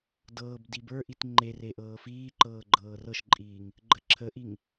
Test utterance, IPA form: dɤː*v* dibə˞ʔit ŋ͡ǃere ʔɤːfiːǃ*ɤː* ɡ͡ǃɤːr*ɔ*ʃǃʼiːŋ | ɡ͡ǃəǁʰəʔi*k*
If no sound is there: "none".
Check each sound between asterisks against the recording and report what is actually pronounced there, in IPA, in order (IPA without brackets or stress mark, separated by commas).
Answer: b, ɤː, ɤ, ŋ